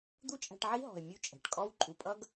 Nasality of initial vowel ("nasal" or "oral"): oral